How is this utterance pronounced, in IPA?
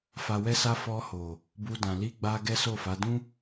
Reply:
f a˨ w ɛ˧ s a˧ f ɔ˧ h o˨ | b u˧ d ã˨ l i˧ ɡ͡b a˧ ɡ ɛ˦ s o˦˨ f a˨˦ d ũ˦

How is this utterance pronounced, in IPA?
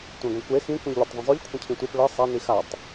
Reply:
tʷ ĩ ɡʷ ə̃ kʷ e x ĩ kʷ ĩ ʎ lʲ o tˤ ðˤ ĩ zˤ o ʎ kʷʰ ə̃ cʰ ĩ tʷ e p ɭ ə sˤ a n i x a tˤ

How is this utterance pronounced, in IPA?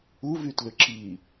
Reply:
u v y t l ʏ ǁ i

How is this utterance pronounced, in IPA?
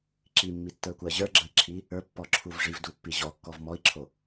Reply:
ǁ i mː i tː ə˞ kʷ ɜ ʑ ə˞ ɡ͡ǁ ə i̯ ǁʰ i | ə˞ pː ɔ ǁʰ u v ʐ i v d u pː i ʑ ɔ kː ɔ v m ɔ i̯ ǁʰ o

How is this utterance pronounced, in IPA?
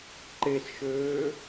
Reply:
ǃ e s ʃ øː

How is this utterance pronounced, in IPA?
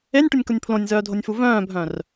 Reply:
e nʲ ʈ ʊ nʲ k ʊ nʲ pʰ l õ nʲ z œː dʱ o nʲ f u v œ̃ː bʱ œ̃ r

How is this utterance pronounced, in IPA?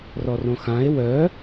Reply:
r ɔ r õ x ã e̯ w œ

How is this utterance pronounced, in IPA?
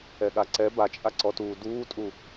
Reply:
ɛ ɠ a ǀ ɛ b a t͡ʃʼ a ǀ ɔ t uː d uː tʼ u

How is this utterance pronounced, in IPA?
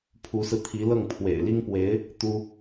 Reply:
pʰ u˧˥ s ɹ̩˧ t̪ʰ i˧˥ l ɤ˥˩ ŋ pʰ w ḛ˨˩ ɪ̯ l i˥ ŋ p w e˧˥ ɪ̯ | t̪ u˥

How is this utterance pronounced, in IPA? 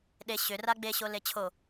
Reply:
ɗ e ɕ ʏ r a ɡ͡b e ɕ o l e t͡ɕʰ o

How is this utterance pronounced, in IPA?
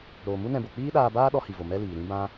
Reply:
ɾ oː˨ m u˦ n ɛ̃˧ b o˨ k͡p iː˦ ɗ aː˧ b aː˦ ɗ ɔ˦ h i˨ v o˨ m ɛ˦ l iː˨ ɾ ĩ˦ b ã˦

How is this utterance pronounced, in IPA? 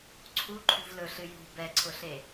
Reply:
ǀʰ u ǃʰ ṳ v l ɵ ɬ ɨ j ṳ b ɛ ǀʰ ʊ ɬ e

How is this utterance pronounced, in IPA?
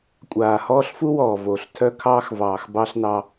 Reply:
kʷʼ aː˨ h ɔː˦ ɬ f u˦ w ɔː˨ v oː˨ ɬ tʰ œ˦ kʰ ɑː˦ x v ɑː˨ x b ɑ˦ ɬ n ɑ˦

